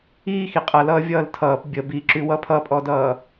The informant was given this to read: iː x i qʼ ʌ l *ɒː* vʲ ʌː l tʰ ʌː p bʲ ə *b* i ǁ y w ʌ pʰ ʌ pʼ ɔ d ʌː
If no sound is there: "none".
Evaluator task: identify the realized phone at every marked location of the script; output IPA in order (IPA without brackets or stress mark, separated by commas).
ʌː, b